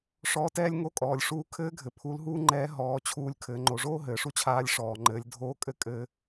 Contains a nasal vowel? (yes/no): no